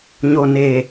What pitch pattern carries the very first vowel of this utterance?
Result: low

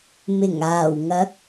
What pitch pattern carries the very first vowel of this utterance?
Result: low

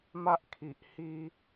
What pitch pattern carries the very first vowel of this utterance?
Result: high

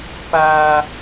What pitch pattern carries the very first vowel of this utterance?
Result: high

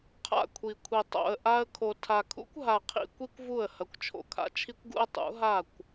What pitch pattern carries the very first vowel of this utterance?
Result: falling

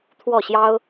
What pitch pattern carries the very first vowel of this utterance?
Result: falling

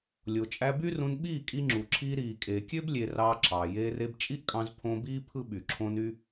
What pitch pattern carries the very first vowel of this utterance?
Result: low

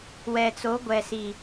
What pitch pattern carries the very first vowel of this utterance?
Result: low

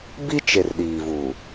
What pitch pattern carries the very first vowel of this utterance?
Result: high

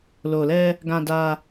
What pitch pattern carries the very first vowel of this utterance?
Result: low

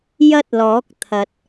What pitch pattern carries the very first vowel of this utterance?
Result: high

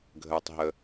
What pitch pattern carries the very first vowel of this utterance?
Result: low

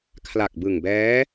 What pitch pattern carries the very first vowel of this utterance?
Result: low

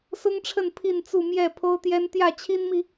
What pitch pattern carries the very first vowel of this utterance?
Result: high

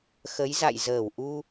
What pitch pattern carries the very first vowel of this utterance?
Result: rising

